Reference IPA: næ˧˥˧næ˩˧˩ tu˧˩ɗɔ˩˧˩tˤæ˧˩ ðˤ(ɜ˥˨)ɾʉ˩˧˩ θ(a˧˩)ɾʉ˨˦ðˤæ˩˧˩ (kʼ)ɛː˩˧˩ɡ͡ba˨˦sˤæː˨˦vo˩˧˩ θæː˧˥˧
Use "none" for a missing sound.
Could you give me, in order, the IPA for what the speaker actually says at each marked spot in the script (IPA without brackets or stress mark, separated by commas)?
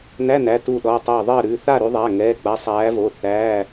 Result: ɜ˥˨, a˥˨, ŋ